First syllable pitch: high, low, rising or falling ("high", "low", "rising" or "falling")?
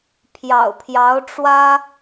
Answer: low